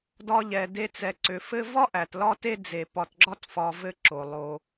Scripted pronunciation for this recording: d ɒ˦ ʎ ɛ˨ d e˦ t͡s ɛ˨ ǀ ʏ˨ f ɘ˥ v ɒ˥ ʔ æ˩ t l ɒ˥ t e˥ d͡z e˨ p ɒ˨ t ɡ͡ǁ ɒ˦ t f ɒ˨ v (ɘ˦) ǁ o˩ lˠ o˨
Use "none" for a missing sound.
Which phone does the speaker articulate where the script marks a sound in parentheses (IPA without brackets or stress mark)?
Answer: ɘ˦